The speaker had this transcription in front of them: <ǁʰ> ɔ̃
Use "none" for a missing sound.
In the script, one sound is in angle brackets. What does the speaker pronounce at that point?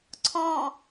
ǀʰ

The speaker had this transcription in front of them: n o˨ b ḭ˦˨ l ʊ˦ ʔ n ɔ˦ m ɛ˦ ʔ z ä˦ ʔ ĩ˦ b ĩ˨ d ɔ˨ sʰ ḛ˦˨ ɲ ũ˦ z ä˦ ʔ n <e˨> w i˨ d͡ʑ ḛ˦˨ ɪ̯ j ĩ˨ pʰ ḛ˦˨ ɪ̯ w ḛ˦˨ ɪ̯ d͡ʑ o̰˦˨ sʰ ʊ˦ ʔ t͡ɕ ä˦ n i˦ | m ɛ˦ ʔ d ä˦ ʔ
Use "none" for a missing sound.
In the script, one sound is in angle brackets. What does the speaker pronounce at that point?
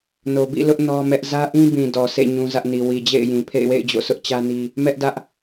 i˨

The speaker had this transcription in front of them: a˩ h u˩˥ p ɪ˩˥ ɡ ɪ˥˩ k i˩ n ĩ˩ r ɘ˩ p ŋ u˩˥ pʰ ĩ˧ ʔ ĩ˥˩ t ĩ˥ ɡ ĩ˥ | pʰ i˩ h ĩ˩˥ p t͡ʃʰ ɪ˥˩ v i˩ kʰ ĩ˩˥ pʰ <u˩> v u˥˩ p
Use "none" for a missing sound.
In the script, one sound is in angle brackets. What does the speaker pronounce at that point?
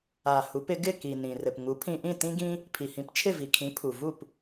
u˩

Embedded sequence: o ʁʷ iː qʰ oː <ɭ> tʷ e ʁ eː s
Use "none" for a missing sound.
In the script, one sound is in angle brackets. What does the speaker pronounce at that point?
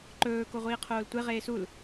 l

